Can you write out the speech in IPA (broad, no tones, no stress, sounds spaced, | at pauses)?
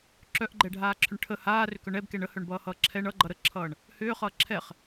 ǁ œ ʔ ɡ͡ǃ ɛ ɖʱ aː ǁʰ ʏ ɳ ʈʰ ə h aː r ʏ k œ ɳ ɛ b k ɛ ɳ ə h œ ɳ b ʌː h ʌː ǁʰ ɛ ɳ ʌ ɡ͡ǃ ʌ ɾ ə ǁʰ ʌː ɳ | h ʏː χ ʌː ǁʰ ɛ χ